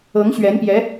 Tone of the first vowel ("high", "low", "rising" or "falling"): rising